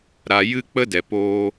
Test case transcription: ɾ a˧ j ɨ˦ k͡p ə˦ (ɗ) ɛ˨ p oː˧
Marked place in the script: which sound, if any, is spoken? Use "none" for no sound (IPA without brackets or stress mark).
d